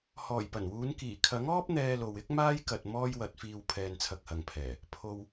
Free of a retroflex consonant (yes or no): yes